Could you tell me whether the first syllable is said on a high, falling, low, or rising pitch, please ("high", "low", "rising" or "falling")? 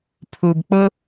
low